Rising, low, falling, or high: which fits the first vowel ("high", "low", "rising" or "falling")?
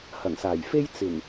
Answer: low